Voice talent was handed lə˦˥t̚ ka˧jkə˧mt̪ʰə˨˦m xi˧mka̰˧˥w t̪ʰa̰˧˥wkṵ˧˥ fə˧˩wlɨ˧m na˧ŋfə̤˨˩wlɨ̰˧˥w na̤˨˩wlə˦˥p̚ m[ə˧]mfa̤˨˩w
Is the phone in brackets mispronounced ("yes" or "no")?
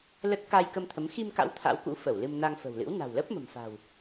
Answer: yes